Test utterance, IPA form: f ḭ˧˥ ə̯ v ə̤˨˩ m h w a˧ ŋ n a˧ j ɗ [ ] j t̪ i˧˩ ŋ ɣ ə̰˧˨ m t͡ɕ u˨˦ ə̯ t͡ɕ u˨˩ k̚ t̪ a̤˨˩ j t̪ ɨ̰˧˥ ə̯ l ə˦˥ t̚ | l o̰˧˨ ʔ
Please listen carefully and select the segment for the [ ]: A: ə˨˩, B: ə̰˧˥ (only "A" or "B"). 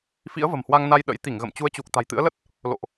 B